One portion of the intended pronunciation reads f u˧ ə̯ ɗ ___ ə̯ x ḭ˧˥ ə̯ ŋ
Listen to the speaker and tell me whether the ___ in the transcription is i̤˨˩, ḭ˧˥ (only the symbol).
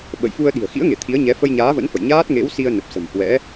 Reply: i̤˨˩